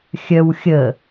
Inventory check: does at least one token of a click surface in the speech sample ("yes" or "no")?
no